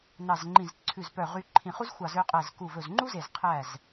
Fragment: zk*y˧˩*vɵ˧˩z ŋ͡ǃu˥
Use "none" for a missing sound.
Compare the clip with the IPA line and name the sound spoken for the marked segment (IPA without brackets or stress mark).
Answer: u˧˩